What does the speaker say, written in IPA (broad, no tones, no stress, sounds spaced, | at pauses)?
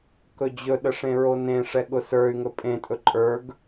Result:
k ɵ d͡ʑ ɵ ɗ ə ʂ ẽ ɹ o n ẽ ʂ ɛ ɠ ʊ s ə˞ y̯ ŋ ɵ pʼ ẽ tʼ ɵ ǃʼ ə˞ ɡ